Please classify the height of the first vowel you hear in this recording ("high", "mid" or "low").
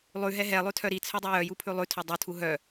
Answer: high